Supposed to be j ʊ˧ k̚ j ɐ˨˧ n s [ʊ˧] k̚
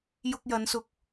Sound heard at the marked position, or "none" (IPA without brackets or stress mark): ʊ˧